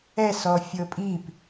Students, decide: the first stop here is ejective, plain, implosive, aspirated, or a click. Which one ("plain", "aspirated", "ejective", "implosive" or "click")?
ejective